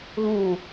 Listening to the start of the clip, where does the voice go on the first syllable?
low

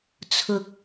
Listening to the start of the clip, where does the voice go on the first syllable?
rising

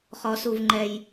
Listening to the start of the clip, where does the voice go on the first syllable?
low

